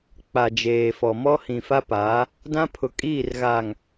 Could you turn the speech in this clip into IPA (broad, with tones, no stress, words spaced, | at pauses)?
k͡pa˨d͡ʒeː˨fɔ˨ mɔ˦ hĩ˨fa˦paː˨˦ | dã˦pʰʊ˨ kʼiː˦˨rɣaː˨ŋ